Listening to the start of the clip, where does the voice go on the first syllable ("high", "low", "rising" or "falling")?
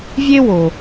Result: high